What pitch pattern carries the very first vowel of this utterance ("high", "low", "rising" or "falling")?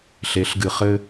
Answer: rising